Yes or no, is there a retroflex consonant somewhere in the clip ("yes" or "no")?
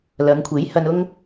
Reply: no